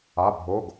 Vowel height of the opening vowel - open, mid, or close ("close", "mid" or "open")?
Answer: open